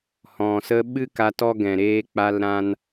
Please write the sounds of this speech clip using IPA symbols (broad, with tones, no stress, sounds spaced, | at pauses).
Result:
h ɔ̃˨ s ə˦ ɓ ɨ˦ k a˧ t ɔ˦ ɡ ɛ̃˨ ɾ eː˦ k͡p a˦ l ɾ ã˦ n